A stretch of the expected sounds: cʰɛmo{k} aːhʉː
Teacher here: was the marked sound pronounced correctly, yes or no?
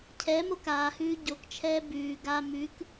yes